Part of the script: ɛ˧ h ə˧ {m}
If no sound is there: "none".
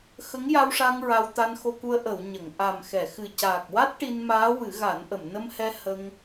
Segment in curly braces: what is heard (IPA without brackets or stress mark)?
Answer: ŋ